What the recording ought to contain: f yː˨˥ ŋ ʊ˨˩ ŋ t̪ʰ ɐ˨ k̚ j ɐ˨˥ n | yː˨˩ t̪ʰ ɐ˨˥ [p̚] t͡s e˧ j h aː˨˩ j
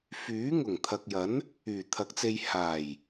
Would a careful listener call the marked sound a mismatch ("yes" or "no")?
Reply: yes